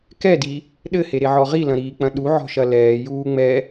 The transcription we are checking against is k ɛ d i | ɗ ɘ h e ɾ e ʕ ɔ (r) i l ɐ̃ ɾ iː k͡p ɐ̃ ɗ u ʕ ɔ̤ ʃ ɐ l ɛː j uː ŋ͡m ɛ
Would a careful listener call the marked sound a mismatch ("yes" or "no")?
yes